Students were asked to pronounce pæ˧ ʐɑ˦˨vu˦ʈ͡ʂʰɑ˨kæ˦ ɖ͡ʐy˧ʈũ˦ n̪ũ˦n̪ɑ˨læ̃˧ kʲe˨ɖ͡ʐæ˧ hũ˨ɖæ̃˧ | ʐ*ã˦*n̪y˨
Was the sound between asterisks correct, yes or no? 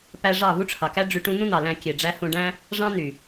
no